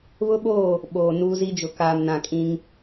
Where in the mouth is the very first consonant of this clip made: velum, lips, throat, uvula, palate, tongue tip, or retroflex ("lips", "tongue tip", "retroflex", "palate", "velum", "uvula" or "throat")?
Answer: lips